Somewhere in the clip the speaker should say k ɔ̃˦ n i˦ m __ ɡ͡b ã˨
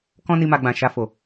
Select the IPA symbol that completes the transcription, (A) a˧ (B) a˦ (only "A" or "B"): A